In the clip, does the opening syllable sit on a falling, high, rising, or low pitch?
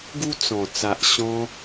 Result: high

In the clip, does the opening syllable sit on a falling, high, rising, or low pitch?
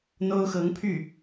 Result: high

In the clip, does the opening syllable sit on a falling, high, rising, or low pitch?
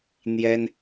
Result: high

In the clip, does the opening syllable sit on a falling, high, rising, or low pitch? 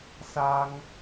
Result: high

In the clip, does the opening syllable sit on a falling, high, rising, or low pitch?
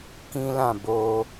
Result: high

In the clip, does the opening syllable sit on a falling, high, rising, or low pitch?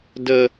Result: high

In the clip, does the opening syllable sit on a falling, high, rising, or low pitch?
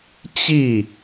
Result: falling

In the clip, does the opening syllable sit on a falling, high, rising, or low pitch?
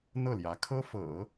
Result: falling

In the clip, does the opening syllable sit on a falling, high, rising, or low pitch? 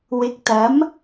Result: rising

